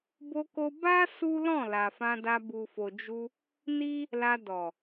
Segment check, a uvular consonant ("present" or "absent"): absent